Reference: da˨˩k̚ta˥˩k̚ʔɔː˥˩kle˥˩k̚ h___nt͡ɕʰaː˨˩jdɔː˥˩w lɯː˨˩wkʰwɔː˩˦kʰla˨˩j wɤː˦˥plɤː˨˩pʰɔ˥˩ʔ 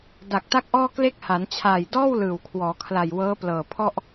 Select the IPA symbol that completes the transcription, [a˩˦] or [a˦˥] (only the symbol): a˩˦